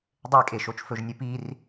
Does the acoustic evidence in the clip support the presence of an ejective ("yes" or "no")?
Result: yes